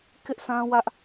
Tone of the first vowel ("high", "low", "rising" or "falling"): high